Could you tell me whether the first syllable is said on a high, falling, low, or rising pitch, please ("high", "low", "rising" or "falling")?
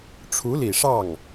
rising